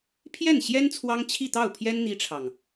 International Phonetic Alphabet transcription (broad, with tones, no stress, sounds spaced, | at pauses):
pʰ j ɛ˥˩ n ɕ j ɛ˥ n t͡sʰ w ɑ˥ ŋ t͡ɕʰ i˥˧ t̪ ɑ˥˩ ʊ̯ pʰ j ɛ˥ n n̪ i˥ ʈ͡ʂʰ ɑ˨ ŋ